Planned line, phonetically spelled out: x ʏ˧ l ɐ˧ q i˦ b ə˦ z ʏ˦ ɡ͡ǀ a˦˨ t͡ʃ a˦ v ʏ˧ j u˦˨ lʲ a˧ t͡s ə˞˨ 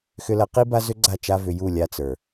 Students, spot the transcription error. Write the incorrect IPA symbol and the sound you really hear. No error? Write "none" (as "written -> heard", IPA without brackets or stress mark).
ə˦ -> a˦